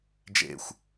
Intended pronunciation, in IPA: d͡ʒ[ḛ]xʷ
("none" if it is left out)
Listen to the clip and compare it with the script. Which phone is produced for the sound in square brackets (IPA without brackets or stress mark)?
ḛ